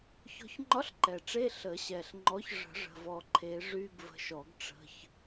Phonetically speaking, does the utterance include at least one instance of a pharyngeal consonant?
no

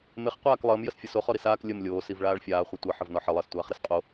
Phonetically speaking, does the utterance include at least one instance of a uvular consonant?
yes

